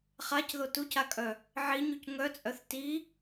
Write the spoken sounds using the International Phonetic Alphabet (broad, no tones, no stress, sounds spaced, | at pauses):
χ a c ð o t u c a kʼ œ | ʕ i ɲ u c ŋ œ t͡sʼ œ θ t i